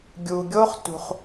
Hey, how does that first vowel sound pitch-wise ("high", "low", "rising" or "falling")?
low